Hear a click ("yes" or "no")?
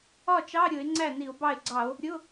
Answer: yes